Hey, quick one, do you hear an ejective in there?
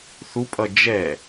yes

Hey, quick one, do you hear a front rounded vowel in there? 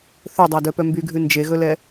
yes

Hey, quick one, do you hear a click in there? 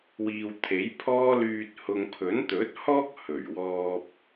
no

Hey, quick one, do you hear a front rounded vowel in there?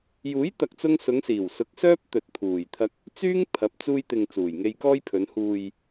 yes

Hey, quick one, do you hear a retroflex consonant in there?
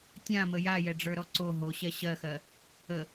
yes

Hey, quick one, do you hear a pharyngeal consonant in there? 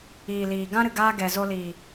no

